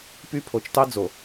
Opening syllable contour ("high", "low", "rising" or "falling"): high